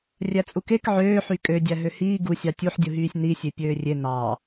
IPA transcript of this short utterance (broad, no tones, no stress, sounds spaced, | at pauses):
rʲ æ t͡sʼ u k e k ʕ øː ħ y kʼ ø dʲ æ ɦ ø h iː ɡ u sʲ ɑ tʲ u ħ dʲ ɯ ɦ yː sʲ n i sʲ e pʲ øː rʲ e n ɑ